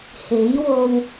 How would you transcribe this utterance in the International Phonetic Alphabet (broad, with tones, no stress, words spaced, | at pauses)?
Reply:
he˨˥jwo˧w